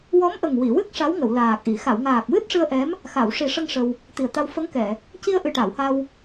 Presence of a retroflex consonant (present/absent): present